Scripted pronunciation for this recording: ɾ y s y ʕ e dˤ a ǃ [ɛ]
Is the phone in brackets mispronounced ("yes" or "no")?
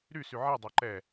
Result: no